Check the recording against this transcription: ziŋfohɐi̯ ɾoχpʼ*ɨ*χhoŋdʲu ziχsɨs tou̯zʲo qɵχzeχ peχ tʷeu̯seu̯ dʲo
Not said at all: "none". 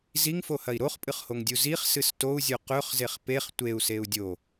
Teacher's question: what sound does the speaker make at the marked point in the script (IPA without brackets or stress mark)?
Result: ɨ